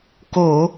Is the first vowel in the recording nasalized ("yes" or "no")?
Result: no